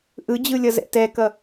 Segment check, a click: absent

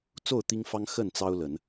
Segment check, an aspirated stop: absent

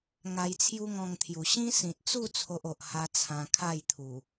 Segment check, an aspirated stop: present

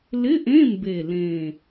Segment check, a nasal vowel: present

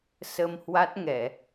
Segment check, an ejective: absent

